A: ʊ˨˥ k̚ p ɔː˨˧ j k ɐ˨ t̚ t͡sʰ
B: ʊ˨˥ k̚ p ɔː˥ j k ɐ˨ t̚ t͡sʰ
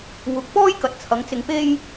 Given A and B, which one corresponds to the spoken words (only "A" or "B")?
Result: B